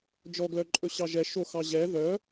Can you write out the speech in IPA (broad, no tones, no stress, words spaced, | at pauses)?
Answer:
d͡ʒɔɡlœǃʼɵ ɕɑʒɛ ʃo xɑʑɛ ðœ